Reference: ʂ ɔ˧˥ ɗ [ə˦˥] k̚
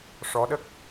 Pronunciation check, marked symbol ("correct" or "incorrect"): correct